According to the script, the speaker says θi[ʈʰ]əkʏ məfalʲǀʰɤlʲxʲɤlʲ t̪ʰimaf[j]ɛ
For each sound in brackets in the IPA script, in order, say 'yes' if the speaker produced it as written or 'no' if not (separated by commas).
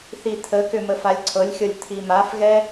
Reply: no, no